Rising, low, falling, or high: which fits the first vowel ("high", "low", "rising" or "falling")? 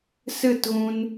falling